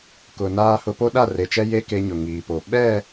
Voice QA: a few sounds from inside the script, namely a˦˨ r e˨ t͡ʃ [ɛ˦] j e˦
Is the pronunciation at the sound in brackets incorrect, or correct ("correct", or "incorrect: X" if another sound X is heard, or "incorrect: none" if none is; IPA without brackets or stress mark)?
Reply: correct